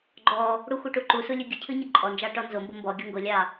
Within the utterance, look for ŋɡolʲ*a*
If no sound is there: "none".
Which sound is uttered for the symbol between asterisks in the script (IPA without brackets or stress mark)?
ɑ